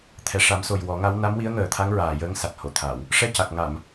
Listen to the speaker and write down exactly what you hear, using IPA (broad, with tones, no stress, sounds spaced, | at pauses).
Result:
t̪ʰ ɛ˨˩ ʂ a˨˩˦ m s o˨˩ j w ɔ˨˩˦ ŋ a˧˥ w n a˧˥ m w i˧˥ ə̯ ŋ əː˨˩ t̪ʰ a˧˥ ŋ ɹ aː˨˩ j əː˧˥ ŋ s a˨˩ t̚ h o˨˩˨ t̪ʰ a˨˩˨ w | ʂ ɛ˧ c a˨˩ k̚ ŋ a˨˩˨ m